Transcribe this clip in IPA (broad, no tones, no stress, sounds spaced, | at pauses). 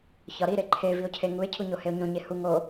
ç ɒ ɾ i ɾ e ǃʰ e v i o̯ cʰ e ŋ u e̯ cʰ u ɲ o h e o̯ ɲ õ ɲ e h u ŋ o